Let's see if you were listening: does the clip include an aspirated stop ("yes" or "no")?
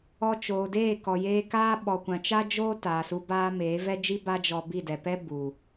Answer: no